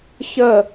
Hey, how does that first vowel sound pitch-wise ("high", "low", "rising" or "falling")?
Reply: falling